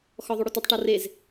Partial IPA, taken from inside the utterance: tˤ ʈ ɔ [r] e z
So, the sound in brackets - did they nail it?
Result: yes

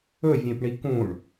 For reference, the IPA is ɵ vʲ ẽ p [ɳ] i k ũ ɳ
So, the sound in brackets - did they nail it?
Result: yes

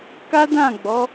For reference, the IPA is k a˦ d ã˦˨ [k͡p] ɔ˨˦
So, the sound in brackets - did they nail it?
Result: no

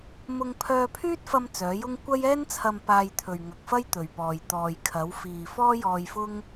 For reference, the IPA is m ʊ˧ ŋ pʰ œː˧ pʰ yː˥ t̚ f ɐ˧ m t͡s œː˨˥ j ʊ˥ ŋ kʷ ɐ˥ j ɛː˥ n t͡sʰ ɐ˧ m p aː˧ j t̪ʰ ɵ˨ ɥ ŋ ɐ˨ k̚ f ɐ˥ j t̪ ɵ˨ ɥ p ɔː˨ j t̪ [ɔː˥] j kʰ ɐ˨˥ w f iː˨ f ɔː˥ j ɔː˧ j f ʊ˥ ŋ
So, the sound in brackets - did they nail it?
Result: no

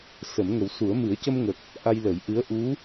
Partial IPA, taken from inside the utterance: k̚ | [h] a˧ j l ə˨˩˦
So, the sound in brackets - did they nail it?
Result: no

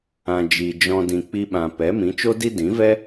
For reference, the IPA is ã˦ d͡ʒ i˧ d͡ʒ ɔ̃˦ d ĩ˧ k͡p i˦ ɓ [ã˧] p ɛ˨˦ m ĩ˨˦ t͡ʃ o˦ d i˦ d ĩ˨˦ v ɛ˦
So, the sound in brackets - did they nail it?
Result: yes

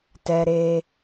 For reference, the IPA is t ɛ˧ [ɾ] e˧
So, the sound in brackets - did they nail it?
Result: yes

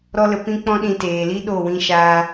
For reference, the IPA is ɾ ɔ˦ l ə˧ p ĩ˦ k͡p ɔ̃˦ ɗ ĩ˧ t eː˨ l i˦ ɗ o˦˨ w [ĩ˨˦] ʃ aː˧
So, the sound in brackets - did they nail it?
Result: no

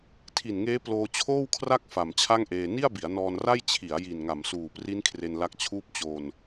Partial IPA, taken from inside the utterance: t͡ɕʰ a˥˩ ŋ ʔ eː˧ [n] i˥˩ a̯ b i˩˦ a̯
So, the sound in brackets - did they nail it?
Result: yes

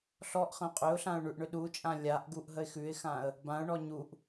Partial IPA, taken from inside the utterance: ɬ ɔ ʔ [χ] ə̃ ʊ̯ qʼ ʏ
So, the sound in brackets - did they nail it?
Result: yes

